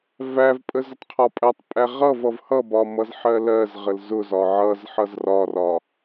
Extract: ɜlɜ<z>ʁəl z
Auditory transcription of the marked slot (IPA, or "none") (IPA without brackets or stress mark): z